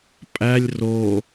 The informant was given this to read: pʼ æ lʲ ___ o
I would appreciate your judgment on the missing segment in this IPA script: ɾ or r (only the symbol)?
r